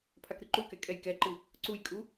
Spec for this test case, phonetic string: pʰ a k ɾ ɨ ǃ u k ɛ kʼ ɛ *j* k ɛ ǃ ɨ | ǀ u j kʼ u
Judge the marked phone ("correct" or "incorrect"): correct